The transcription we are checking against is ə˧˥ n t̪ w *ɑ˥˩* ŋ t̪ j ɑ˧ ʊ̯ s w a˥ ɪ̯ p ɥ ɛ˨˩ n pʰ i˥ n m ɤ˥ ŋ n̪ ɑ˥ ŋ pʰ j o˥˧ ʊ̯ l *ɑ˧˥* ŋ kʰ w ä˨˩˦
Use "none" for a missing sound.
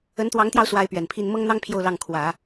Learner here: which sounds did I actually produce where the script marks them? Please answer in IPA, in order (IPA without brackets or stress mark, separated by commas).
ɑ˧˥, ɑ˥˩